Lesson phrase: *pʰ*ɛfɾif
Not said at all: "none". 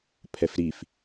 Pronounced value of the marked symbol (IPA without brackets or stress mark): pʰ